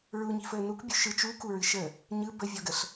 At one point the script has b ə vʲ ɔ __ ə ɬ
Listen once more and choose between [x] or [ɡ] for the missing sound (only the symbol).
ɡ